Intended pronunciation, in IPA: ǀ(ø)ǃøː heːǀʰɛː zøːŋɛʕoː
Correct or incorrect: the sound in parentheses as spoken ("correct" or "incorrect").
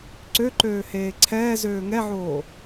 correct